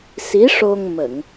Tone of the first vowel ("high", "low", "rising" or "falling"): rising